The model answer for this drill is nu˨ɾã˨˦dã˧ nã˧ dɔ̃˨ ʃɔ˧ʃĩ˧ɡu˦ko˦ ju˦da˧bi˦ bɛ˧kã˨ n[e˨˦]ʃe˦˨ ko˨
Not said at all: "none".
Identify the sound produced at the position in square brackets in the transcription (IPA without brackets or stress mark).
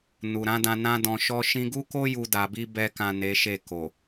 e˨˦